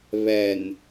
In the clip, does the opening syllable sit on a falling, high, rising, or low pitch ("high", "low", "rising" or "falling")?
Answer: low